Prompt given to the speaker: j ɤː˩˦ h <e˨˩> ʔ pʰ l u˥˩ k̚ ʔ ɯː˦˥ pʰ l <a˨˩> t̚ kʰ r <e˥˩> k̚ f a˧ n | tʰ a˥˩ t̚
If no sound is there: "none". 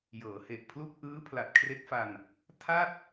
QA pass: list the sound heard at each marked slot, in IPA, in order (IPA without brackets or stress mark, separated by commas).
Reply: e˨˩, a˨˩, e˦˥